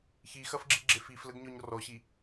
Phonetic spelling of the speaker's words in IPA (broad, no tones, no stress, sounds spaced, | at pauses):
ç i x ɐ f ɡ͡ǁ i ɡ͡ǁ e f i f l ə ɡ ɲ ɔ ɲ r ɔ ɕ i